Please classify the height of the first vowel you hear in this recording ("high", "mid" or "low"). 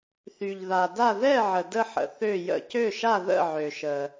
high